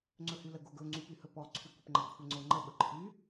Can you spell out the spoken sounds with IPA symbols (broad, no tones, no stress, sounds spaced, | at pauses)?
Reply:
ŋ͡ǀ ɵ h y l ə ɡ o ɡ ɵ ŋ͡ǀ y p y h ɵ p ɔ ǀʰ y kʷ ə p ŋ͡ǃ ə ɡ kʷʰ ə ŋ͡ǀ o ŋ͡ǃ ə ɓ ə ǃʰ y